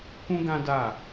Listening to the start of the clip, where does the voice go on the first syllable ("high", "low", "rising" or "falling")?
high